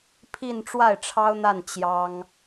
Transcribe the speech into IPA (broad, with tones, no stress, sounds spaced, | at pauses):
pʰ i˥˧ n ʈ͡ʂ w a˥˩ ɪ̯ ʈ͡ʂʰ ɑ˥ ʊ̯ n̪ a˥˩ n t͡ɕ j ɑ˥ ŋ